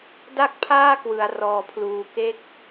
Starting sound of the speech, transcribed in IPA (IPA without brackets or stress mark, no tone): d